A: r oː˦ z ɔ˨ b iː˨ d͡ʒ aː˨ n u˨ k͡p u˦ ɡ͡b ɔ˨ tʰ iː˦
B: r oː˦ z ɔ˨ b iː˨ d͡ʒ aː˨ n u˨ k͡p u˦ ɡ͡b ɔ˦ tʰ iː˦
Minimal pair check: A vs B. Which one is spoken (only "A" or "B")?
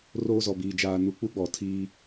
A